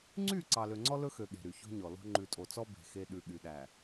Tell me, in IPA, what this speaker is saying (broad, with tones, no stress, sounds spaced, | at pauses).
ŋ͡ǀ y˦˨ ǀ ɑ˨ l ø˨ ŋ͡ǀ ɔ˦ l ɵ˦ x ø˨ ɠ e̤˨ ɾ y˨ ç o̤˦ ɲ ɔ˨ l o̤˦ ŋ͡ǃ ʉ˨ tʼ o˨ t͡s ɔ˦ b e̤˨ x e˦ ɗ ʉ˨ ɠ y˨ ɗ æ˨